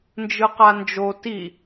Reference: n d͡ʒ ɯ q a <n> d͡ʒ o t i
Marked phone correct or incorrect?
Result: correct